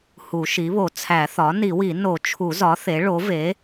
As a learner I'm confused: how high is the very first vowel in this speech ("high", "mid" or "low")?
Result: high